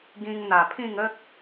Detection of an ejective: absent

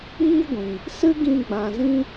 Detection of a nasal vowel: present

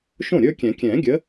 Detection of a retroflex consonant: absent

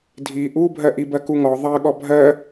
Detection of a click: absent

